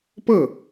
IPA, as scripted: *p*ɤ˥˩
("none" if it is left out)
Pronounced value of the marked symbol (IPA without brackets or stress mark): p